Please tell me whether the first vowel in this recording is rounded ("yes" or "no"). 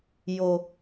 yes